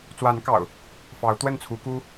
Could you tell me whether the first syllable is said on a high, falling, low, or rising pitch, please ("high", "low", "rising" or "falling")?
rising